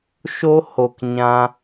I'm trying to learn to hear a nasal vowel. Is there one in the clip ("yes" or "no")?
yes